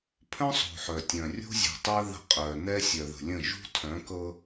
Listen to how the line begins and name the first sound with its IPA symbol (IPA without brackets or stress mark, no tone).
pʰ